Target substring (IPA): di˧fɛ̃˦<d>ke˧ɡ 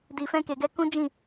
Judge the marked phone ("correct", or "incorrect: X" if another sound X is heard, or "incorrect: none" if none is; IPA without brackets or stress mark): incorrect: none